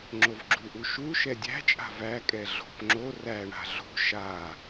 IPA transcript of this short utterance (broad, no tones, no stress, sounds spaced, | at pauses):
ŋ͡ǁ o v ɡ͡ǁ u ʔ u ʃ u ʃ ɛ dʲ æ̤ t͡ʃʼ a̤ v æ kʼ ɛ ɮ o̤ p ŋ͡ǁ o r æ ɳ a̤ ɮ o̤ ʃ a